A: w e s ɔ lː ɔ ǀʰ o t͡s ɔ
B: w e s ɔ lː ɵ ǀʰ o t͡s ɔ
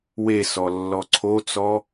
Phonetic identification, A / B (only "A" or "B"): A